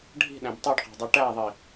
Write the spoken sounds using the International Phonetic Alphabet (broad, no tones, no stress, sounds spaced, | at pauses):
ɖʱ i̤ ɗ æ̃ b tˤ y ɖ q æ̤ dˤ y ʈ æ ðˤ i